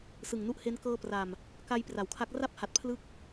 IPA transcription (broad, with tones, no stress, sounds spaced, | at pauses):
s ɯ˨˩ ŋ n u˦˥ ʔ h e˦˥ n k ɤː˧ p r a˨˩ m | k a˧ j p r a˩˦ w kʰ a˦˥ k̚ r a˥˩ p̚ h a˨˩ t̚ pʰ l ɯ˦˥ k̚